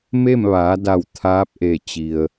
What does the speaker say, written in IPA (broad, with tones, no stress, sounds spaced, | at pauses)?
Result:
m e˥˨ m ʋ aː˩˧ d a˧˩ w t̪ʰ aː˧˥ p̚ ʔ e˧˩ t͡ɕ i˩ ə̯